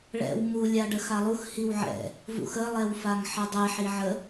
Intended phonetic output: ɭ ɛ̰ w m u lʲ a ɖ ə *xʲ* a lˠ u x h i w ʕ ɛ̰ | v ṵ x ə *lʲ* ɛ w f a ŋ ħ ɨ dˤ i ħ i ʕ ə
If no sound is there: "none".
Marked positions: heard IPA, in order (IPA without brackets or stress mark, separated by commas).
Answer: x, lˠ